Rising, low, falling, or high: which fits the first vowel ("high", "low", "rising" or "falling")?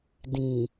low